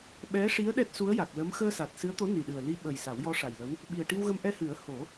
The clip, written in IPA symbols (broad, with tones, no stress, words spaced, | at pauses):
ɓɛ˧˥ʂi˧˥ə̯ ɗɛ˦˥t̚su˧˥ə̯ja˨˩k̚lə˧˥m xəː˧sa˨˩t̚ sɨ˧˥ə̯t̪o˧˥ ni˨˩ɗɨ˨˩ə̯li˧ ɓə˨˩j sa˨˩˦wjɔ˧˥ʂa˨˩jlə˧˥w | ɓi˨˩ə̯ʈi˧wɣə˧m ʔɛ˧hɨ˨˩˦ə̯ ho˨˩˦